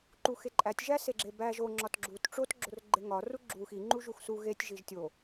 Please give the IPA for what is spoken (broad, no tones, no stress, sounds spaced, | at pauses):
ǃ u x e ǃʼ æ tʲ ʒ æ s e ɡ͡ǁ e b æ ʒ o ŋ͡ǁ ɒ t ɡ͡ǁ u t ʈ͡ʂ o t ɡ͡ǁ o r ɡ͡ǃ e ŋ ɒ r u ɡ͡ǁ u x i ŋ͡ǃ u ʒ u x s u ɣ e tʲ ʒ i ʒ tʲ o